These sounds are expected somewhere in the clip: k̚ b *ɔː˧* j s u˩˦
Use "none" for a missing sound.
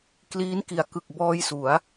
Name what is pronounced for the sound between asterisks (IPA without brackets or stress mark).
ɔː˧